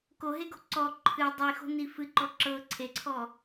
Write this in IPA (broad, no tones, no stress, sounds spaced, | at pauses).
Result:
k o ɦ e ɡ o̤ ǀ ɔ ǃʰ ɨ dˤ i x o̤ n i f ɨ ǃ ɔ ǁ ɤ ǀʰ e ǀʰ ɔ